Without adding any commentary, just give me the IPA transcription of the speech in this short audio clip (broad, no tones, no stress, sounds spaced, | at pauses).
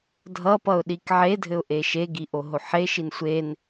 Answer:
dʱ ʌ p ʌ ʊ̯ ɗ i k ʕ e dʱ ɘ ʊ̯ ʔ e ʃ e ɡ i ʔ o ɦ o ħ e ʃ i n sʷ e n